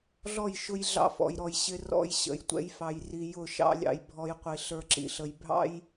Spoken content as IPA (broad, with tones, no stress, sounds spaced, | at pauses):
ɮ ɔ˦˨ j ʃ ʊ˦ j ɮ ɑ̰˦ f ɔ̰˨ j ɾ ɔ˨ j ɕ ɪ˦ r ɔ̰˦ j ɕ ə̰˨ j tʷ ɛ̰˦ j f ɑ˨ j r i˨ j ʊ˦˨ ʃ ɑ̰˦ lʲ ɑ̰˦ j bʱ ɔ˦ j qʷ i˨ ɬ ə˞˦ ǁ ḭ˨ ɬ ə˨ j bʱ ɑ̰˦ j